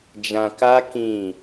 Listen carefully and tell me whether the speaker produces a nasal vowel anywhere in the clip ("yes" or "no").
yes